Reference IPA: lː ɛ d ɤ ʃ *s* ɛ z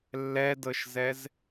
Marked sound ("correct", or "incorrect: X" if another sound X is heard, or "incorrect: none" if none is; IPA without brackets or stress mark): incorrect: z